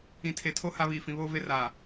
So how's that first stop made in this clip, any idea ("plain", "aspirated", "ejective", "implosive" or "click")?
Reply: aspirated